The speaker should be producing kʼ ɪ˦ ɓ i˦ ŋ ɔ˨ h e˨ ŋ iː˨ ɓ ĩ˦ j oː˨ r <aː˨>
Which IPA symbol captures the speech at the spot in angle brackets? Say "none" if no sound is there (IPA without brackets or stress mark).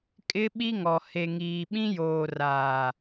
aː˨